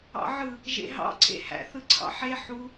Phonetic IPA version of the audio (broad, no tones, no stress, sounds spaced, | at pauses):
ɑ̰ ʕ ɯ | ʒ ḛ ɦ ɑ̰ ǀʰ ḛ h æ̰ θ ɯ ǀʰ ɑ̰ ħ e ħ u